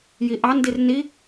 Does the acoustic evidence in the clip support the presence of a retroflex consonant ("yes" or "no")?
no